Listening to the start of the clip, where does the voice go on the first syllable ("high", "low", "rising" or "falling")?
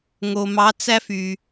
low